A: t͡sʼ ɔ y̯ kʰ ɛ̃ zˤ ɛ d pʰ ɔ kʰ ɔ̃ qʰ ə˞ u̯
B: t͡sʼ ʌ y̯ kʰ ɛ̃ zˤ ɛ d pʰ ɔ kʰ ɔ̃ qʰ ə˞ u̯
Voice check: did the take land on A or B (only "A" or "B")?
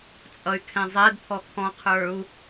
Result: B